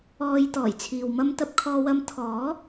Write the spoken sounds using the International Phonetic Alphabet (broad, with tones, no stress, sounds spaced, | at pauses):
ɔː˧ j t̪ ɔː˨˩ j t͡sʰ iː˨ w m ɐ˥ m t̪ ɐ˥ p̚ kʰ ɔː˧ w ɐ˧ m t̪ʰ ɔː˨˥